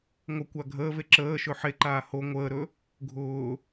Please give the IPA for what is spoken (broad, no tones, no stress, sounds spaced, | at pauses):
ŋʷ ə kʷ a ɡʱ əː v e ǁ əː ʃ ɵ ħ e ǃ aː h o ŋʷ əː ɾ ɵ | ɡʱ ʊː